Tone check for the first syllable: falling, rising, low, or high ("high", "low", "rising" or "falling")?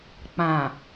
low